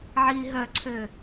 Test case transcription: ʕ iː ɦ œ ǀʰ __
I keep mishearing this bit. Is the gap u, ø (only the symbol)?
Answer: ø